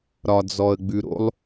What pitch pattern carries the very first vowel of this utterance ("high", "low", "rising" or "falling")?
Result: low